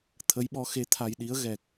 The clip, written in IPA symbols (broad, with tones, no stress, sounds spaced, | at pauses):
t̪ʰ ə˧˥ j ɓ ɔ˧˥ x e˧˥ t̪ʰ a˧ j ɗ i˧˥ ə̯ ɣ ɛ˨˩ k̚